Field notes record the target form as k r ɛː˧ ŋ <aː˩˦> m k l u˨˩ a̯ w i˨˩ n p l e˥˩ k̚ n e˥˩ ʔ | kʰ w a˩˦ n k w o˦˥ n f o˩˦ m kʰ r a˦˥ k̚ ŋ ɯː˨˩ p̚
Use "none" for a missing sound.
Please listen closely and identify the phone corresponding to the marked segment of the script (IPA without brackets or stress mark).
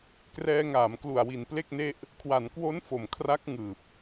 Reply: aː˩˦